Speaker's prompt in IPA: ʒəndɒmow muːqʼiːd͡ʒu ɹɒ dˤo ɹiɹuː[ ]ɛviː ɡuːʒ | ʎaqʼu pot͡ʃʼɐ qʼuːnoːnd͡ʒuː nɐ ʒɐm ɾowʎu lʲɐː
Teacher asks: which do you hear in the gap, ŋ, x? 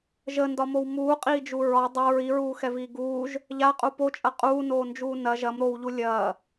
x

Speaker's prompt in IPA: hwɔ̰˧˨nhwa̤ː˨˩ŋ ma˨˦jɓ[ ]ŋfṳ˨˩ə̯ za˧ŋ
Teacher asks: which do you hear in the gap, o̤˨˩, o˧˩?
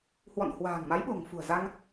o̤˨˩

